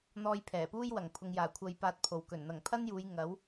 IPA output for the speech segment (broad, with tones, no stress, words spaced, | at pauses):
n̪ɔː˧jpʰɛː˨˩puː˥j wɐ˨˩ŋpʰʊ˨ŋjaː˨˩ kʷʰɐ˧jpaː˧t̚pʰo˨˩wkɵ˨˩n n̪ɐ˨˩ŋpʰɐ˥njuː˨˧j ŋɐ˨˥w